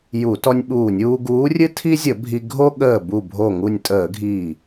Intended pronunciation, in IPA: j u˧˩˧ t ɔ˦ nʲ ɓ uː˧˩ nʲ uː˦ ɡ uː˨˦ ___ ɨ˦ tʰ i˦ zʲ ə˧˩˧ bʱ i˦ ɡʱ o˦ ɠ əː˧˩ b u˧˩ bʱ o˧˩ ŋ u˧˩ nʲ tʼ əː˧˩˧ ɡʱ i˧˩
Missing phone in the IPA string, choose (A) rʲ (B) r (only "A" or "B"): A